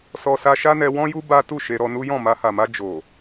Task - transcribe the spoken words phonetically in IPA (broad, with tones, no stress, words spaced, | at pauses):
sɔ˦sa˦ ʃa˦nɛ˧wɔ̃˦ju˦ ba˦ tu˦˨ ʃe˧ɾɔ˧nu˦ jɔ̃˦˨ma˧ha˨ma˧ d͡ʒo˨